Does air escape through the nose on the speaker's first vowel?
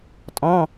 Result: yes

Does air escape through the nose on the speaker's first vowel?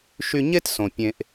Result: no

